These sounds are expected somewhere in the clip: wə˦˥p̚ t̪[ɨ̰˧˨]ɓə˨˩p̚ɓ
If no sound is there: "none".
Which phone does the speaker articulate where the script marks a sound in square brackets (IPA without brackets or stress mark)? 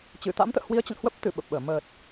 ɨ˧˩